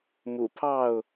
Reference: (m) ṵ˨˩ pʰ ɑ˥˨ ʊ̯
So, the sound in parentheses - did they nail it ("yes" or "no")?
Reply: yes